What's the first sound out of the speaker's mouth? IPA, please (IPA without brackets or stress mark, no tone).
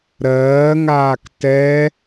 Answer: ɾ